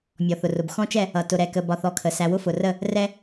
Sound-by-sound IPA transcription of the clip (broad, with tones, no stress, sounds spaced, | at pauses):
mʲ ɔ˨ θ ʊ˨ r ʊ˨ b x ɔ̃˦ t͡ʃ ɛ˦˨ | ʌ˨ t ʊ˨ ɾ ɛ˨ k ə˨ b ɒ˨ θ ɔ˦˨ kʰ ə˨ s æ˨ w ʊ˦ f ʊ˨ r ə˦˨ | r ɛ˦